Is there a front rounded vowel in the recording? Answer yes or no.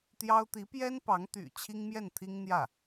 yes